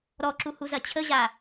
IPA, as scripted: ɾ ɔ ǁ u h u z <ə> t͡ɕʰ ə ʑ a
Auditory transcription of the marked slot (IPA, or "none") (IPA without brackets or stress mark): ɐ